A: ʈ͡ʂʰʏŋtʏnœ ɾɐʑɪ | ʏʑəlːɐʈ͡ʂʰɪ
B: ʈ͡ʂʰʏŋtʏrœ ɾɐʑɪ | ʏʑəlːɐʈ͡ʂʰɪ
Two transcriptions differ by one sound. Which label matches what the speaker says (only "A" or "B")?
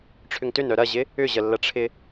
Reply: A